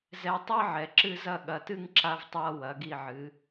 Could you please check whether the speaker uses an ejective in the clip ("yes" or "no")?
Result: no